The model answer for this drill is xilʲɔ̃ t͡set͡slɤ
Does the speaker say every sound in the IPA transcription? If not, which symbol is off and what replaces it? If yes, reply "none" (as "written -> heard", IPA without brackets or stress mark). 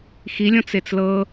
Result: none